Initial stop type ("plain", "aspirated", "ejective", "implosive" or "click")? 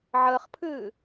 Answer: aspirated